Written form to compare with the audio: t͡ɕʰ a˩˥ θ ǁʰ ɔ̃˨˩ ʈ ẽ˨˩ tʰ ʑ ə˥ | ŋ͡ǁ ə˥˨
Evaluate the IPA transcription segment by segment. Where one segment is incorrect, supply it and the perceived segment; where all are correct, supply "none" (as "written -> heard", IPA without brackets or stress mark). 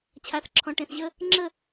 tʰ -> θ